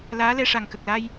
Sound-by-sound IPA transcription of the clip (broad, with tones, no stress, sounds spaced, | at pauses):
l aː˧˥ l ɛ˧ ʂ a˨˩ ŋ k ə˨˩ k̚ l a˧ j